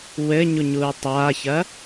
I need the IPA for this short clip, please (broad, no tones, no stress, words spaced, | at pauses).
wɘɲu ɲuːtˤaːçɐ